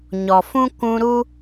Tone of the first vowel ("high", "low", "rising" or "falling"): low